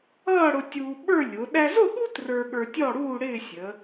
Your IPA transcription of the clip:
ʌː˥˧ ɽ ʊ˧ tʲ uː˧ ɓ ə˞˥˧ lʲ ʊ˩˧ ɗ æ˧ z ʊ˥˧ ɠ u˥ t r ə˞˧ ɠ ə˞˧ tʲ ɔ˥˧ ɽ uː˥˧ ɽ ɪː˥˧ sʲ ə˩˧

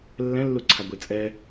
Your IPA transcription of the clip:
lː ɛ̃ lː u ǀʰ a ɡʷ e t͡sʼ ɛ

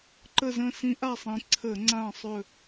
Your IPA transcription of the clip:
ǃ ə˦˨ z ə̃˦˨ s ĩ˧˥ ʔ a˦˨ sˤ ĩ˩˧ ǀʰ ə˧˩˧ ŋ͡ǀ ã˦˨ sˤ ɵ˦˨

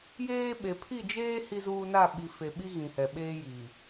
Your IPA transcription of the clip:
j eː˦ ɓ e˨ pʰ i˦˨ d͡ʒ eː˦ h i˦ z uː˦ n a˦˨ ɓ i˨ f e˨ ɓ i˦ ɣ ĩ˨ h ɛ˨ ɓ eː˦ j i˨

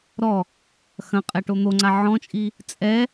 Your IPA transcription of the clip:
ɾ ɔ | x ɐ̃ qʼ ɛ ʈ o n̪ o ŋ͡ǀ a ʕ ɔ̃ t͡ʃʼ i | t͡sʼ ɛ

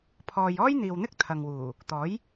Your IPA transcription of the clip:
pʰ ɔː˨ j ɔː˥ j n̪ iː˨ w n̪ ɪ˥ k̚ t̪ʰ ɐ˨ ŋ w uː˨˩ | t̪ ɔː˨˥ j

